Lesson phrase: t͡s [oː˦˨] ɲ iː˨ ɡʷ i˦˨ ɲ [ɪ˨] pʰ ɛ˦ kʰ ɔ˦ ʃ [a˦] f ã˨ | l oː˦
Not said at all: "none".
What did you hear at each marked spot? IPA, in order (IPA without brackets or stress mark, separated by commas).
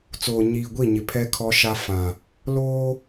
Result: oː˨, ɪ˨, a˦